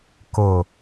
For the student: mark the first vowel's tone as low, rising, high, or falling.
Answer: low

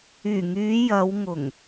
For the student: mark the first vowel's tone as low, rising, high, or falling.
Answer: low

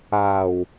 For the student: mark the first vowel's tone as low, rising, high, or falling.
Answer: low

